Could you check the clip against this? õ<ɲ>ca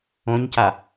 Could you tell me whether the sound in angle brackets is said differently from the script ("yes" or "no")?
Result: no